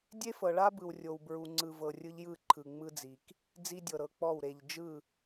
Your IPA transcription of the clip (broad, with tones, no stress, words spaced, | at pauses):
dʲe˦fɤ˨ɭa˦bɯ˨w rʲo˨wbɹu˨ŋ͡ǀɯ˨ vɤ˨rʲɯ˦ʎjɯ˦˨ ǃʰɯ˨ŋ͡mɯ˦d͡zi˨k | d͡zi˦dʲɤ˨ɾɤ˨k͡pɔ˦˨w ɾe˨ʎ d͡ʒɯ˦˨